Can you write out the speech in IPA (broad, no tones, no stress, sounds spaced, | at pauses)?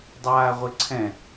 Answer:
dˤ aː ʁʷ ɘ ǀʰ ɛ̃